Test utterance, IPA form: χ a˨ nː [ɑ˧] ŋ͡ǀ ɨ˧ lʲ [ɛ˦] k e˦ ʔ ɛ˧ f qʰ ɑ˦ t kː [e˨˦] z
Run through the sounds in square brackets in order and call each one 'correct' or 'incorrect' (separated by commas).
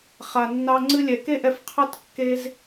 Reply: correct, incorrect, incorrect